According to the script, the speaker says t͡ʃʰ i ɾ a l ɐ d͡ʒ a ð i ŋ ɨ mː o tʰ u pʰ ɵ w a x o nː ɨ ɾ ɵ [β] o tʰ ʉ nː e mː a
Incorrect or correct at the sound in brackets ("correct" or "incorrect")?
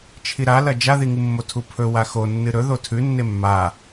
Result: incorrect